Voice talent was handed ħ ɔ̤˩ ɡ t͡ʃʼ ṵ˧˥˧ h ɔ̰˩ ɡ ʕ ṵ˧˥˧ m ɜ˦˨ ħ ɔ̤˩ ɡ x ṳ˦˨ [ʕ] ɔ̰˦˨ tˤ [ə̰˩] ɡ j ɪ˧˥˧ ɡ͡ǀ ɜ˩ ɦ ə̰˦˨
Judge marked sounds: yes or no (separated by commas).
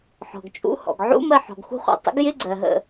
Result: no, no